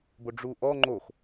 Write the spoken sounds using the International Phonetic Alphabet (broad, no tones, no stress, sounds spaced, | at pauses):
b o ɖ͡ʐ u ʔ ɔ ŋ͡ǃ o x